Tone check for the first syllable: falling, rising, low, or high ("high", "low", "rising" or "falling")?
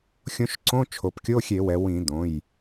rising